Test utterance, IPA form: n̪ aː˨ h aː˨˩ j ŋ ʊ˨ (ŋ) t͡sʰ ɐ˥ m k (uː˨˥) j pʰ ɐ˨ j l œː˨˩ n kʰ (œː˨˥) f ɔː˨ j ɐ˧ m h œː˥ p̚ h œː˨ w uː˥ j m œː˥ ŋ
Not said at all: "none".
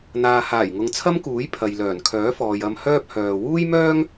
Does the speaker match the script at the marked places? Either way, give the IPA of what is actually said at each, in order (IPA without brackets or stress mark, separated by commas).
ŋ, uː˨˥, œː˨˥